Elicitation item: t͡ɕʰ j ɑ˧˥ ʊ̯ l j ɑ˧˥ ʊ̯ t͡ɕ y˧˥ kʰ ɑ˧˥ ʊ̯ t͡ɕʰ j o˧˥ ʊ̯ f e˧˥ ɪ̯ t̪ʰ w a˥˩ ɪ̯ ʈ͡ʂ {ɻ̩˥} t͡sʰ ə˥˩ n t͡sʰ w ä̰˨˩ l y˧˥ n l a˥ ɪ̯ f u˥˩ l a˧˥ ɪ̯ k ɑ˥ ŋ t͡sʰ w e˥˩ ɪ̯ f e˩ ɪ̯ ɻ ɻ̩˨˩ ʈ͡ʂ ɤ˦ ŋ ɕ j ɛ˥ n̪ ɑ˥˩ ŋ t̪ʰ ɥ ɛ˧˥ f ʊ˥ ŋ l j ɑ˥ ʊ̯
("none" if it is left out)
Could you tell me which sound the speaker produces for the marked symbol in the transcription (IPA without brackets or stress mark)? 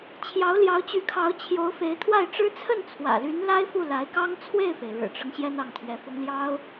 ɻ̩˥